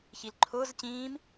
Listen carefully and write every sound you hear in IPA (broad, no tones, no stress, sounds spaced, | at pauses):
ç i l ǃʰ ʊː z c ĩː m